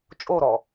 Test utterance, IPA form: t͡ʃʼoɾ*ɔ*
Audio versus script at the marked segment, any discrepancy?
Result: no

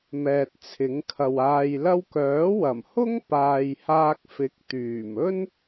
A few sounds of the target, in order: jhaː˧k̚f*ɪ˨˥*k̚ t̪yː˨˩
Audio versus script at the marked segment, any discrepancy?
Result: no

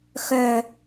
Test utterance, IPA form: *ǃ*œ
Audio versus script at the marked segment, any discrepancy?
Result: yes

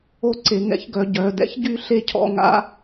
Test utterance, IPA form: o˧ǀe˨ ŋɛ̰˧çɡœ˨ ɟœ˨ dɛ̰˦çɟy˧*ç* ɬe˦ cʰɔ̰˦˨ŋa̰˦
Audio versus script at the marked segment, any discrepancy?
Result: yes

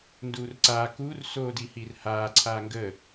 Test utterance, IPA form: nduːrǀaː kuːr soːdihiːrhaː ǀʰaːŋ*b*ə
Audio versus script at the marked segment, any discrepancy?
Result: yes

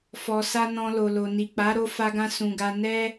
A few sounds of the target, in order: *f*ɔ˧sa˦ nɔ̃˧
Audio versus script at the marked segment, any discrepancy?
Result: no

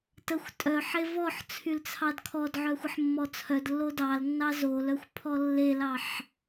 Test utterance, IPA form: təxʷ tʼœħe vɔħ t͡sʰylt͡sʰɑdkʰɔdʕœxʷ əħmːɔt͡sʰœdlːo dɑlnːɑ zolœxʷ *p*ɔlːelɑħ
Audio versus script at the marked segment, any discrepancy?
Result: yes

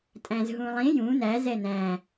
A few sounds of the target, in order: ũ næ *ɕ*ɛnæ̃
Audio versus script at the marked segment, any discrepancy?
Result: yes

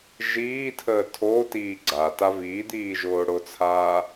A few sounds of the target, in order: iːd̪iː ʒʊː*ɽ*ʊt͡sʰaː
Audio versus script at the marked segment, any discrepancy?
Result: no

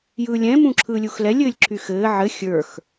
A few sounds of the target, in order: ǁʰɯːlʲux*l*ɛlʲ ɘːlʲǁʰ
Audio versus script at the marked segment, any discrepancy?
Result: no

